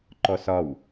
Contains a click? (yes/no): yes